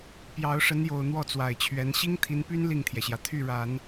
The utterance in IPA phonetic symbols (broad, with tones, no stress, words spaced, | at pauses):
pjɑ˧˥ʊ̯ʂə˧˥njo˨˩ʊ̯ n̪wɔ˥˩t͡swa˨˩ɪ̯t͡ɕʰɥɛ˧˥n ɕi˥ŋt̪ʰi˧˥npy˥n li˥˩ŋt̪ʰjɛ˩ɕjä˩ t̪ʰy˥˩ɻa˨˩˦n